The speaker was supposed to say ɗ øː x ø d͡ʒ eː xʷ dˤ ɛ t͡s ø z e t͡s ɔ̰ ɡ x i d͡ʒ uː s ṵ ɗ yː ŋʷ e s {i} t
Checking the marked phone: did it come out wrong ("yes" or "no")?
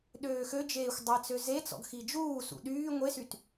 yes